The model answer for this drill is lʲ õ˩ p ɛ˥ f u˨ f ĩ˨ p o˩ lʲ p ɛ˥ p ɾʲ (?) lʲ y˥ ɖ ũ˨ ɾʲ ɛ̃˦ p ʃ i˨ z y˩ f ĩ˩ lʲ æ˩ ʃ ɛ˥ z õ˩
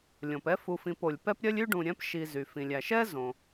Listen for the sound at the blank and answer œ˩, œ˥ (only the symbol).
œ˥